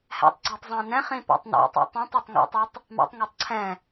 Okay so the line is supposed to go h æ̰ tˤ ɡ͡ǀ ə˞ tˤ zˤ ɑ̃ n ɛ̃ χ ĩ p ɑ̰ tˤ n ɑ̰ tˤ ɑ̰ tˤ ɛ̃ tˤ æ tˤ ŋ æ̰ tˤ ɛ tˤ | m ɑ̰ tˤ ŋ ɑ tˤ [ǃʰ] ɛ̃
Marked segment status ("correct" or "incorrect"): incorrect